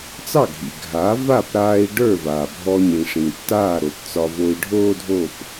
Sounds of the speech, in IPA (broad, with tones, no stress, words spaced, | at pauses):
t͡sɑ˥˩ɡʱḭ˩ ɡʱa˩˥va˥˩pɾaː˧i̯ ɖə˞˥˩vaː˩ bʱɔ˧ɲĩ˩ ʂĩ˩tːaː˥˩ ɾo˩pt͡sɒ˧vo˧i̯ ɖʱoː˥dʱo˥˩p